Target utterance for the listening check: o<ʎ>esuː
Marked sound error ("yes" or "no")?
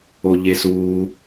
no